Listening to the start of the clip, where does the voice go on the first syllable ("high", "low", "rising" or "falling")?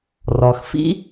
low